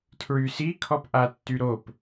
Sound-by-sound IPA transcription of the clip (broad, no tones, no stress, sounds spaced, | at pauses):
tʰ ɹ y s i kʰ ɔ p ʔ a tː y ɾ o p